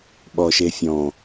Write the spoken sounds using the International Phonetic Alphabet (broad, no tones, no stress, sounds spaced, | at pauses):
ɓ ɔ ʃ e fʲ ɔ̃